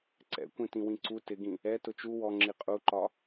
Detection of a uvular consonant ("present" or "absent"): present